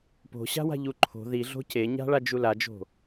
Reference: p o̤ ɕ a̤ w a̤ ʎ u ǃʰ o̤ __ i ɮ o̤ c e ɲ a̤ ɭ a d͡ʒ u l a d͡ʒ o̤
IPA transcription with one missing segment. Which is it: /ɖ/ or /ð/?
ð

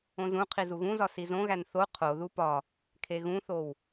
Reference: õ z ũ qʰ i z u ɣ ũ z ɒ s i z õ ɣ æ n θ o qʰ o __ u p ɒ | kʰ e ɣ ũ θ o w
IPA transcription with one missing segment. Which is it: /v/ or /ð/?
ð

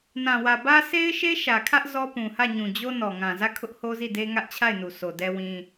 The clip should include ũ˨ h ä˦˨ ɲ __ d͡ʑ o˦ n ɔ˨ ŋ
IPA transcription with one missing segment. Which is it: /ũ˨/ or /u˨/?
ũ˨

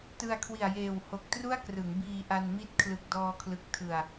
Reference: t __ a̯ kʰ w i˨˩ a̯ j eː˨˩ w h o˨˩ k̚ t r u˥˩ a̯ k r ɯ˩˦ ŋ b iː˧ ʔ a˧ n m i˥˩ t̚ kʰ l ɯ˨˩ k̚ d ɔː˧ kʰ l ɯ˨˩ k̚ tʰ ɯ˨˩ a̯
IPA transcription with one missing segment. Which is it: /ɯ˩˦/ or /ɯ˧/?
ɯ˧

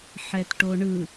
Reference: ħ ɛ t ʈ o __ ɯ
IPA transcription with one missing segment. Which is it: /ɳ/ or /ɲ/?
ɳ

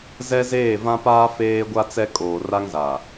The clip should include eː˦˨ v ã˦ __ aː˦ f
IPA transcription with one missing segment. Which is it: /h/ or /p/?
p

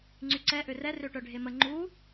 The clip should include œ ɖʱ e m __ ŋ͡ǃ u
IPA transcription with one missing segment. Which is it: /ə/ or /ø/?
ə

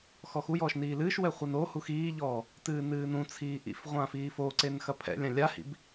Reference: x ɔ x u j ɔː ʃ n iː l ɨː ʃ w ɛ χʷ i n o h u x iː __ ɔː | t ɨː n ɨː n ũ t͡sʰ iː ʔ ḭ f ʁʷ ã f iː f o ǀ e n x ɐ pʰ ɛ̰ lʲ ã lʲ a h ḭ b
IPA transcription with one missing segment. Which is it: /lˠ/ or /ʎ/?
ʎ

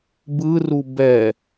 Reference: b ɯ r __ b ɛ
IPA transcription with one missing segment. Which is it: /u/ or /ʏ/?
u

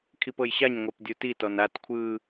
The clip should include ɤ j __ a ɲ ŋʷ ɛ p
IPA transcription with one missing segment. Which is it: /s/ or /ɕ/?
ɕ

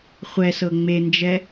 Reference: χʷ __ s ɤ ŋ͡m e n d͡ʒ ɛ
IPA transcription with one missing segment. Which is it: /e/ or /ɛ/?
ɛ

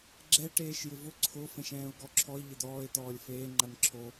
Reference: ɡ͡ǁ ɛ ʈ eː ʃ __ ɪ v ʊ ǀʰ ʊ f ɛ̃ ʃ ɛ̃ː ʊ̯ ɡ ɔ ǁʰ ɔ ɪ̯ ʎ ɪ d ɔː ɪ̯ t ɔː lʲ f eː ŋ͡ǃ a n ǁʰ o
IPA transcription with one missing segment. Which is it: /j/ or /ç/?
j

